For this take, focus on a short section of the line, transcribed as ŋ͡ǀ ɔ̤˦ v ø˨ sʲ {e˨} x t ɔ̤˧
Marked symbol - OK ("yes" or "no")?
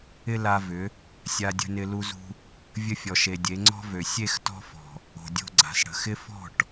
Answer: no